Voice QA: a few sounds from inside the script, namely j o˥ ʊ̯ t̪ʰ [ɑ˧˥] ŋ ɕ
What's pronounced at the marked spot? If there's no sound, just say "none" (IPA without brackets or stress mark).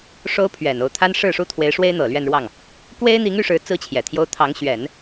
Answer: ɑ˧˥